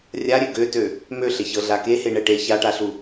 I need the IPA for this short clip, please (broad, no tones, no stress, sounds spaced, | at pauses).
rʲ a ɾʲ ø ɡ ø t ø | m ø ɬ e ç ɤ ɮ a k e h e ɳ ɛ ʈ e ç a ʈ a ɬ u